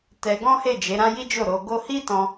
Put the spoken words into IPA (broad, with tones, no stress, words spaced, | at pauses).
tɛ˧ɡɔ̃˦he˦˨ d͡ʒe˨˦ɾã˦ji˦d͡ʒo˦˨ ɾo˧ɡo˦ hi˦tɔ̃˧